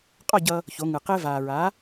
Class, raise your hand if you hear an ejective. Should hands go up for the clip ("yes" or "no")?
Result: yes